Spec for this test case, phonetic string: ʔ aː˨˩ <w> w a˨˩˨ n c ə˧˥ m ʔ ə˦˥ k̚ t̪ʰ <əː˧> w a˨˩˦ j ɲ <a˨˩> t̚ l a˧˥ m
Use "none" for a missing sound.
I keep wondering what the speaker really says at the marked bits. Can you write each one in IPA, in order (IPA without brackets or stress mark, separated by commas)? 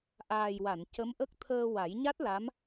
j, əː˧, a˦˥